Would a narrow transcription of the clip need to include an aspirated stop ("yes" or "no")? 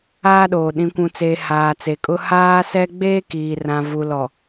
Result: no